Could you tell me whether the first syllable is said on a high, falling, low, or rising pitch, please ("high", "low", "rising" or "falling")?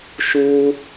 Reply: high